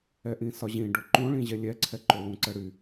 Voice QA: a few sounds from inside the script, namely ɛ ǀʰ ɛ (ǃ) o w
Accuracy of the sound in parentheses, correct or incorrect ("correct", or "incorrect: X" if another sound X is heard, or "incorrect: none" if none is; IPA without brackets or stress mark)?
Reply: correct